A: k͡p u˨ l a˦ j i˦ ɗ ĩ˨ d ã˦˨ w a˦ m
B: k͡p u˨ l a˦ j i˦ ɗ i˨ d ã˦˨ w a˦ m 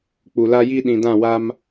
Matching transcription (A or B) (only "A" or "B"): A